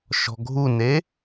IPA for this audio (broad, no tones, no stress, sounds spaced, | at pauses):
ʃ ɔ̤ ɡʱ u n e